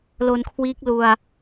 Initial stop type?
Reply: aspirated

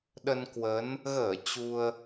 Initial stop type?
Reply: implosive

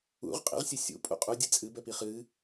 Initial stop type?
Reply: ejective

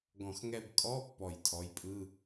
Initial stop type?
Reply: plain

